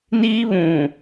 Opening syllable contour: high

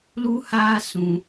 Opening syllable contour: high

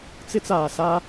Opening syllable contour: high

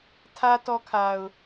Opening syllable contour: high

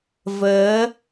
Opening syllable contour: rising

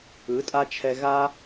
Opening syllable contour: rising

